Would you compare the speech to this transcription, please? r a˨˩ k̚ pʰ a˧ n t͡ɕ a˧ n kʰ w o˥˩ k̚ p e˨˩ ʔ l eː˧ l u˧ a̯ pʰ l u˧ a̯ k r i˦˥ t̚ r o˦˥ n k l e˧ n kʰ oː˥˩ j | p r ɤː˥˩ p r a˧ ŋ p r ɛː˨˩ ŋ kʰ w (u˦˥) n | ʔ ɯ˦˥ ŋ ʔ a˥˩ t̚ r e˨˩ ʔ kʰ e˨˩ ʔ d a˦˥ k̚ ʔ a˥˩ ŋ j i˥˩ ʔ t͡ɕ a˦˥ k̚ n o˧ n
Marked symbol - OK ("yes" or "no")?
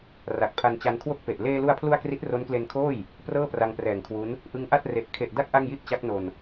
yes